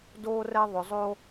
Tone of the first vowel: high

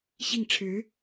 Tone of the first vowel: falling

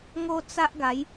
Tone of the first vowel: high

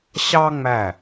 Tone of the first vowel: high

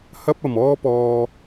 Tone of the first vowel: high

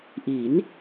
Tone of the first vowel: rising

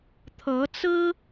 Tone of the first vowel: rising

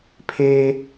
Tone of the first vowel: high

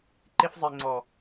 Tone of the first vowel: high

